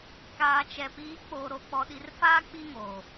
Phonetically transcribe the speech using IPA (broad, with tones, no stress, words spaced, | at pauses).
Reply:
kaː˨t͡ʃɛ˨ piː˨˦k͡poː˨ɾo˨ k͡pɔ˨ɗi˨rfaː˦ k͡pi˦ŋoː˨